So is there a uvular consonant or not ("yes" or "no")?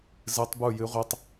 yes